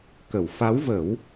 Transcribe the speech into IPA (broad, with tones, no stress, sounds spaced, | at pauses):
k ə˨˩˨ w f a˧˥ w v əː˨˩˦ w